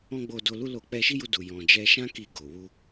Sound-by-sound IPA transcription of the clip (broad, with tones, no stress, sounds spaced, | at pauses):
ɔ̃˦ ɡ͡b o˧ d o˧ l u˦ l o˦˨ k͡p ɛ˧ ʃ i˦ j u˧ d u˨ j ɔ̃˨ d͡ʒ ɛ˧ ʃ ã˦ k i˧ ɡ o˨ w u˧